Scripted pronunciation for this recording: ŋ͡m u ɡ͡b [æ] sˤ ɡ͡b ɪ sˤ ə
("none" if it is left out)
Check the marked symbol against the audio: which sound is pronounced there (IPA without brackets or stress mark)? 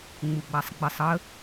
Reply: a